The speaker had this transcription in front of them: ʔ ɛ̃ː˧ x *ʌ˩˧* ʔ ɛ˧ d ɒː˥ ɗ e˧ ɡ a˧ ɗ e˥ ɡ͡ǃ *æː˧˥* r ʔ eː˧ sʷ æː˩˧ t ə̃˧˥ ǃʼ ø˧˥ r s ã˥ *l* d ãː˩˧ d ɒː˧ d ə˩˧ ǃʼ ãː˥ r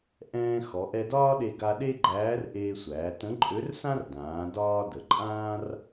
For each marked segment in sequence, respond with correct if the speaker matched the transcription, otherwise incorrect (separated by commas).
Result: incorrect, correct, incorrect